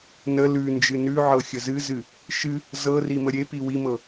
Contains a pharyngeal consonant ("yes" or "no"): yes